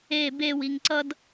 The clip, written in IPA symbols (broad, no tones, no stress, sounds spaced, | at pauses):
e b e w i ŋ ǀ ʌ d